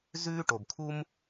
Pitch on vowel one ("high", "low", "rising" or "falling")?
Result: high